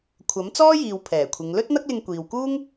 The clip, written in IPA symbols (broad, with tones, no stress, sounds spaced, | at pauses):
kʷʰ ɐ˨˥ m t͡s ɔː˥ j iː˨ w pʰ ɛː˨˩ kʷʰ ɪ˨˧ ŋ l ɵ˥ t̚ n̪ ɐ˥ k̚ l ɪ˧ ŋ kʷ iː˨ w k uː˥ ŋ